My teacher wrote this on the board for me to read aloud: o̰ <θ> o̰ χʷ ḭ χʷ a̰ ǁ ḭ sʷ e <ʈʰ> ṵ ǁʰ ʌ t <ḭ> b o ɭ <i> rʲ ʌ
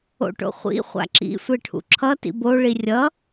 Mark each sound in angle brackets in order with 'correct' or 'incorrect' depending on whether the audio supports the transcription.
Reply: incorrect, correct, correct, correct

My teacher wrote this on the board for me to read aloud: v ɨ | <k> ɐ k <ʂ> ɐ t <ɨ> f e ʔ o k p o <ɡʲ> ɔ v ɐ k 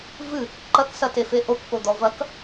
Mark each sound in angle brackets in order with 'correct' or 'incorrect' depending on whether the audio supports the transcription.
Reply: incorrect, incorrect, incorrect, incorrect

